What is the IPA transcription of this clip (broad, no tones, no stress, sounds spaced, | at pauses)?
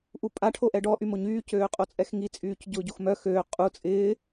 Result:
ʔ u pʼ a ʈʰ o ʔ ɛ ɖ ɔ ʔ y m o ɲ yː c øː qʼ o t͡sʼ ɛ x ŋ i t͡sʼ yː c ɟ ʊː ɟ o x m œ x øː qʼ u t͡sʼ ɪː